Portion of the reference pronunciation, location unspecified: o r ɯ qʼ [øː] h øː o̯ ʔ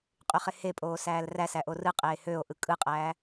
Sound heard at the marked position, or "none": eː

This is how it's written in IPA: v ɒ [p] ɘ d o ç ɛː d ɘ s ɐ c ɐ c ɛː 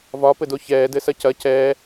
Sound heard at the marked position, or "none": p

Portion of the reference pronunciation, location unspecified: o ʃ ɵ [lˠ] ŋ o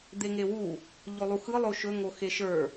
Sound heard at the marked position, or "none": none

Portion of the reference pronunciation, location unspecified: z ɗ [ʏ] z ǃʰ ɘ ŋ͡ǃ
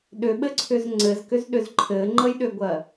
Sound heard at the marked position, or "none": ʏ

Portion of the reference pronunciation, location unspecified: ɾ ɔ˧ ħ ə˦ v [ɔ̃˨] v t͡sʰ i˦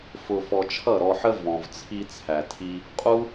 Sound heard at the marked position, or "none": ɔ̃˧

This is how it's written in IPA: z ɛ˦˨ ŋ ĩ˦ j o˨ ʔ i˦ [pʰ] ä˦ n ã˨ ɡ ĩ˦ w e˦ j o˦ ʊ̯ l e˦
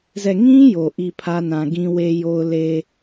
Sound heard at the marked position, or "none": pʰ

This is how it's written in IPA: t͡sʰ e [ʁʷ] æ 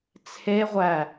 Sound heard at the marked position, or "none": ʁʷ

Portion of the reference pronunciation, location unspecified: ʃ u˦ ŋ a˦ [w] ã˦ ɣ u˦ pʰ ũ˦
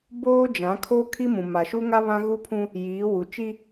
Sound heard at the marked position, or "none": β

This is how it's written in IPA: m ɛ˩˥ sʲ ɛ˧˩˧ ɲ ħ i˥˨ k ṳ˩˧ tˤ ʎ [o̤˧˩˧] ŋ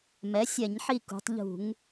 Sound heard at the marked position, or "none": ṳ˧˩˧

